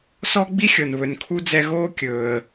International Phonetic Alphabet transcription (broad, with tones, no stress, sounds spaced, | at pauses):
s ɔ˥ ɡ͡b i˥ xʲ ɤ˩ n β ɵ˩ n kʰ u˧ d͡z ɛ˧ ɣ oː˥ kʲ ɵː˩ ə̯